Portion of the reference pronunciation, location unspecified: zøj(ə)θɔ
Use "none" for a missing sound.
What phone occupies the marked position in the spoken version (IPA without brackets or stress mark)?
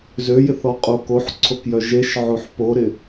ɪ